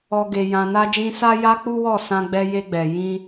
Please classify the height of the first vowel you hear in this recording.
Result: mid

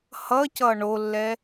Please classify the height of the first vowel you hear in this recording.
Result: mid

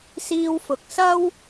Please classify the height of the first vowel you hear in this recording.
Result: high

